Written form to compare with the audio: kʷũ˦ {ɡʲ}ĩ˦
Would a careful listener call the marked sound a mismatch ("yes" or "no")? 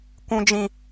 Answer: yes